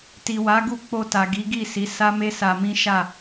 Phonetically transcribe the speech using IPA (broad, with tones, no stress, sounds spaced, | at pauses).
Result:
t i˨ w a˨˦ ɡ u˦˨ k͡p o˧ t a˨ ɡ i˨˦ ɡ i˦˨ s i˨˦ s a˦ m e˦ s a˧ m ĩ˦ ʃ a˦˨